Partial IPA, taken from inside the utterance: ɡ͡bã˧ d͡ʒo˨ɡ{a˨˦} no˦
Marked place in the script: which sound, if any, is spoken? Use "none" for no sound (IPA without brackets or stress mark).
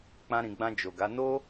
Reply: a˨˦